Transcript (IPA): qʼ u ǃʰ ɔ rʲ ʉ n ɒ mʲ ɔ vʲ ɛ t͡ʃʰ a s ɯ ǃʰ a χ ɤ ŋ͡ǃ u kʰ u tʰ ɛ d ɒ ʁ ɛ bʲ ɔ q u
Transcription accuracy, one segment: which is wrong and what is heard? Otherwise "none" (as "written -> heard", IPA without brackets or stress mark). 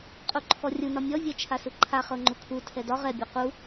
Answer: ʉ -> u